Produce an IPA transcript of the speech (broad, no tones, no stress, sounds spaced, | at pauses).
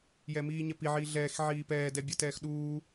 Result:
j ɛ m iː ɲ ɛ p i ʕ iː ɮ ɛː x ʕ iː p ɛː d ɛ bʲ ɐ t ɛː x ɗ uː